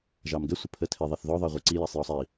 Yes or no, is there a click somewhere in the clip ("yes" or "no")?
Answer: yes